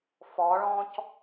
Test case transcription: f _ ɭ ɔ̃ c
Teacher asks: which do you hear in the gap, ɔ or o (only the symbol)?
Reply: ɔ